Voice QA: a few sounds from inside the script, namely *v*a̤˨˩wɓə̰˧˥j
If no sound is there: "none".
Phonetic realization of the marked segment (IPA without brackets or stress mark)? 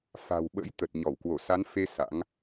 f